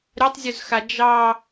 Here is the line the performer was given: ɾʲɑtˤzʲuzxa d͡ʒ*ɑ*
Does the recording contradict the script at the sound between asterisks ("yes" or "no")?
no